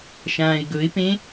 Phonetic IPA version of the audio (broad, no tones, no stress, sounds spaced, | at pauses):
ʃ ãː ɪ̯ ɡ ɵ ɪ̯ p ẽ